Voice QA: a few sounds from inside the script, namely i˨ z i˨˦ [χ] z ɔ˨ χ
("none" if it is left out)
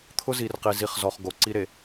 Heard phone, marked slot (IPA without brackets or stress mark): χ